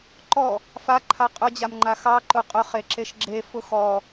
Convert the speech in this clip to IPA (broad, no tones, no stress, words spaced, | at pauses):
ǃɔ | faǃʰa qʼʊd͡ʑamŋ͡ǃa xɑǃʊ qʼʊχeǁeʃ ɡ͡ǁefʊ xɔ